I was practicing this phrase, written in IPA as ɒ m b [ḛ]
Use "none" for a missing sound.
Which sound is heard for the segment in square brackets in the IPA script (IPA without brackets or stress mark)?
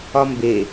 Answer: e